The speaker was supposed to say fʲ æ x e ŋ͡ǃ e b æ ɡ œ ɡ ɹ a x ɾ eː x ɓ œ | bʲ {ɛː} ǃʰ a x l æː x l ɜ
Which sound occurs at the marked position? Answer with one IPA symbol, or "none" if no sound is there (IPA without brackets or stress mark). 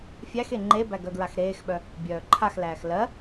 œː